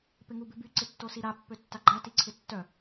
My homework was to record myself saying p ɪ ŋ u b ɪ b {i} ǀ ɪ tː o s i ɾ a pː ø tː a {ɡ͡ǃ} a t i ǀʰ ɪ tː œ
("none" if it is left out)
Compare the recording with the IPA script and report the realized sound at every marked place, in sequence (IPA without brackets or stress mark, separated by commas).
y, ɡ͡ǃ